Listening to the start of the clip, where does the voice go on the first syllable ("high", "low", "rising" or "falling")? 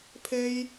high